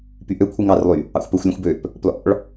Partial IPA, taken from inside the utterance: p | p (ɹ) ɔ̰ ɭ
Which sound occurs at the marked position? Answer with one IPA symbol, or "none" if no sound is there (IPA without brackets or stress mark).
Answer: l